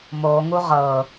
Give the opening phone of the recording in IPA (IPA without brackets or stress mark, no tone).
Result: m